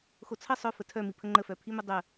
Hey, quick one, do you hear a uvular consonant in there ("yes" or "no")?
no